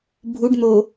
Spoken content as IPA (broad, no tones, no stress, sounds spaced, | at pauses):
bʱ u ɖ n̪ o